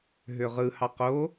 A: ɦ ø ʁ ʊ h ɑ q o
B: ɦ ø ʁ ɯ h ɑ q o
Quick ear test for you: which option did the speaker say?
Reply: B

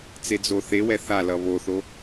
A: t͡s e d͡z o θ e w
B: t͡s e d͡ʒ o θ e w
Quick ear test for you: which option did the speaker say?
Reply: A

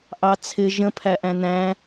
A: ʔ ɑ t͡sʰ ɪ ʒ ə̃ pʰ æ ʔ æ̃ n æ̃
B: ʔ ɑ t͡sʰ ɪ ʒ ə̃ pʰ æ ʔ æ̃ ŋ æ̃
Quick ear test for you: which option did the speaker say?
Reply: A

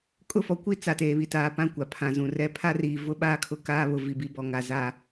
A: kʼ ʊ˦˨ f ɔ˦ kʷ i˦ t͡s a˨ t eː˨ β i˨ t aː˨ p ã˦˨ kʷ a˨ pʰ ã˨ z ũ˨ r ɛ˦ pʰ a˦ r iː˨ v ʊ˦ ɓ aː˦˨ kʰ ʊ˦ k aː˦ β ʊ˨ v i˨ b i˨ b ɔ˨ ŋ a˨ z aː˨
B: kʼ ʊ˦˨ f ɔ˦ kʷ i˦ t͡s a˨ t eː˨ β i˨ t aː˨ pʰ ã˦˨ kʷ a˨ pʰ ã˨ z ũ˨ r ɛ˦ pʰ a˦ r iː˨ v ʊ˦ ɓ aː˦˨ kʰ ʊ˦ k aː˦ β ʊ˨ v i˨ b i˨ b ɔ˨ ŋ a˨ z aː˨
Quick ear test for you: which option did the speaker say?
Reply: A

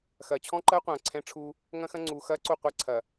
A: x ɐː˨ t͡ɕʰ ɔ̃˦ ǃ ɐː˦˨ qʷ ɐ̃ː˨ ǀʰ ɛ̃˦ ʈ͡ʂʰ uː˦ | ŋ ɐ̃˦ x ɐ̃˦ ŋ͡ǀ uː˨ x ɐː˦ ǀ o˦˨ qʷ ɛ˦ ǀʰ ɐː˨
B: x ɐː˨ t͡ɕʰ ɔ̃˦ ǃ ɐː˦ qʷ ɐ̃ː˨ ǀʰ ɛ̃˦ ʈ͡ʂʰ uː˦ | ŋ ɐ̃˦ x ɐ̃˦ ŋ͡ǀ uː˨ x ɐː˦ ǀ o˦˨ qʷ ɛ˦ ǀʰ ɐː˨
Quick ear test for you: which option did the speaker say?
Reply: B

